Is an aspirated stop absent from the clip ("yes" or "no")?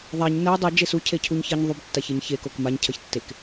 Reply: no